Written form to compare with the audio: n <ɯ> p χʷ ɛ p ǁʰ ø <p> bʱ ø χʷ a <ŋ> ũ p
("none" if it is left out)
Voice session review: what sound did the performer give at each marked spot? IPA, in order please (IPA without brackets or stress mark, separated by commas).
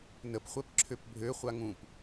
ə, p, ŋ